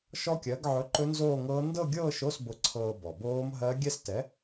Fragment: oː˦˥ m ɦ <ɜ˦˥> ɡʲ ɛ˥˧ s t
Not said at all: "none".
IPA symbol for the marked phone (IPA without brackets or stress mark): ɜ˦˥